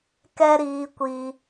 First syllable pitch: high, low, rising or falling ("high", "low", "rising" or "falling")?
high